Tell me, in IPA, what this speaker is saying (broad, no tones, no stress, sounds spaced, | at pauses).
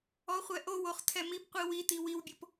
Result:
ɔ χʷ ɛ ʔ o w o χ tʰ ɛ m i p qʷ i w i t i w i w bʲ o p